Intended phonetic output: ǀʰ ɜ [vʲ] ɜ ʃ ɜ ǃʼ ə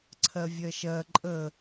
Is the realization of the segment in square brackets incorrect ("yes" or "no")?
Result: no